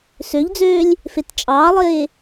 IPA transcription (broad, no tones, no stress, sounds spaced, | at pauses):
s ø ʎ d͡z øː lʲ | f e t t͡ʃʼ ɑː lˠ eː